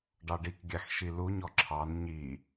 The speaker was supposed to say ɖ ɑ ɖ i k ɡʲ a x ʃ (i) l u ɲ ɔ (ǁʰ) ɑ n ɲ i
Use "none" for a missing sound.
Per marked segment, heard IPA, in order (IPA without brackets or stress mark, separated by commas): i, ǁʰ